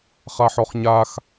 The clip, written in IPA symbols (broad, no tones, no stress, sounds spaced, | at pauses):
χ a ħ ɔ χ ɲ a x